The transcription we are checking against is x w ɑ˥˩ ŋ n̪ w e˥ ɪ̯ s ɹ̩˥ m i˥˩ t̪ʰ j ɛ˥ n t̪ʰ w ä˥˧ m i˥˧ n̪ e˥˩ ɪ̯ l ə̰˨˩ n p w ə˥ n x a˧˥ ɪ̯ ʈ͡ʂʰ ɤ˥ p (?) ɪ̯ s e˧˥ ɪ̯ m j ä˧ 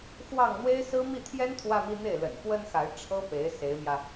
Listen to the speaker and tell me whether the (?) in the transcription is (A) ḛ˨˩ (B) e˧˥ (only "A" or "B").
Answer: B